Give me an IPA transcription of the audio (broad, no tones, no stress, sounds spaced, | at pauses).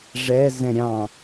ʐ ɛ z ɛ̃ ɾʲ ɑ̃